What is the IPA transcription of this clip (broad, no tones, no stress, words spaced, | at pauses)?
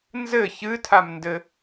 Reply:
nzɘ çɨtʰamndɘ